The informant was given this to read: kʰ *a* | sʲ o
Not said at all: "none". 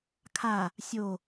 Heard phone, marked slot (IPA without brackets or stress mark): a